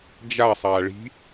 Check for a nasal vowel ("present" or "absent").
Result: absent